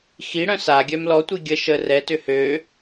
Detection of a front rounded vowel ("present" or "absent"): present